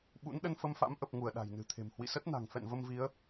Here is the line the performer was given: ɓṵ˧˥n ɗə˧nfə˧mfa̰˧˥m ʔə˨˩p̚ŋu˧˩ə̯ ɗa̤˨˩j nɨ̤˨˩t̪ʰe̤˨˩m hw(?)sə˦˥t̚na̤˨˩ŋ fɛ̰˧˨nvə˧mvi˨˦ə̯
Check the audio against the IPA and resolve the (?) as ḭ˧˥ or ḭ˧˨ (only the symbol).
ḭ˧˨